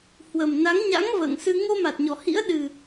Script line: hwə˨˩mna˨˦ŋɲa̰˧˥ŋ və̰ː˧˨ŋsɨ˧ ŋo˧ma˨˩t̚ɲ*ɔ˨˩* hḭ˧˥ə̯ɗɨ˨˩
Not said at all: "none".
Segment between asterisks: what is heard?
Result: ɔ˨˩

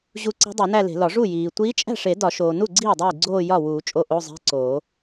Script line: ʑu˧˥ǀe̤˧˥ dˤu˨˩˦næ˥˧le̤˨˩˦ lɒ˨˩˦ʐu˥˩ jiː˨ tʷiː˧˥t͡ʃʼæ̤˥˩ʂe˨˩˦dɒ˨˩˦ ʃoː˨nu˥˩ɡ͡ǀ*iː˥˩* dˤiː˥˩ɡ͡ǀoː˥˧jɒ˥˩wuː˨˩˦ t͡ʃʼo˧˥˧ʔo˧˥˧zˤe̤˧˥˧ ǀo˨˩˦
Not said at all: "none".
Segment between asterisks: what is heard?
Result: iː˥˩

